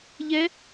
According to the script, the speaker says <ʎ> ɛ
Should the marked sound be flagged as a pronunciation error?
no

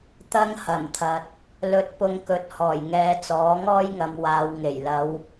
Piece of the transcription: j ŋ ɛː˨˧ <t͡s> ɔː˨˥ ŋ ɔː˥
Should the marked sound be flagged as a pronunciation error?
no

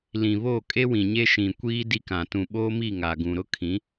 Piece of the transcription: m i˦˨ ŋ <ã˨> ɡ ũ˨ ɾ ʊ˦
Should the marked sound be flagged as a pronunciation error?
yes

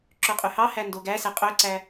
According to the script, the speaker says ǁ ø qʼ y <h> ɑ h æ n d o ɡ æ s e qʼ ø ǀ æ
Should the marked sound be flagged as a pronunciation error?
no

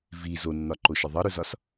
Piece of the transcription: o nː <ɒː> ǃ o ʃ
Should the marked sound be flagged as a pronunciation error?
yes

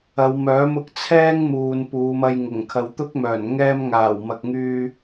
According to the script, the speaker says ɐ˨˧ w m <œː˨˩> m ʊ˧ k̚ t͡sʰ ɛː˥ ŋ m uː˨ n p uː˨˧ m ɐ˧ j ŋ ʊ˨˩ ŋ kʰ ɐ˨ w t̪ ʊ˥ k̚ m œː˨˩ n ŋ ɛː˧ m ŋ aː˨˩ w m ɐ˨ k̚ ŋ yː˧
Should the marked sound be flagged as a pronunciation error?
yes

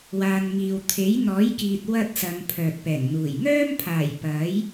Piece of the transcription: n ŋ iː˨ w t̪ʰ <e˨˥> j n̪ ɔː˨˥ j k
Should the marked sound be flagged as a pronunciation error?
no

